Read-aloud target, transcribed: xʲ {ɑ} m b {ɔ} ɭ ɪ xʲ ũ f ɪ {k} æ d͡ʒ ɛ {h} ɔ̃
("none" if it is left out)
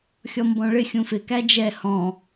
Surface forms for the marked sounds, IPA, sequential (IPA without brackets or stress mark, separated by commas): ɔ, ɔ̃, k, h